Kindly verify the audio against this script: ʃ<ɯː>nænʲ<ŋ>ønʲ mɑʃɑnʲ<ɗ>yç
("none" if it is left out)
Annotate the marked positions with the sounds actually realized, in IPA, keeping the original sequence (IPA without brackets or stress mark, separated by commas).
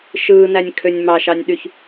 ɯː, kʰ, ɗ